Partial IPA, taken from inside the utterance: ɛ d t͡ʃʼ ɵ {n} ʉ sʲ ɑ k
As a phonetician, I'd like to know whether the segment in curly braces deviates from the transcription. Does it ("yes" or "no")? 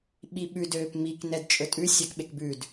yes